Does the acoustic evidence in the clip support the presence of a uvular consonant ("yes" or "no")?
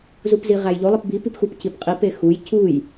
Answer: yes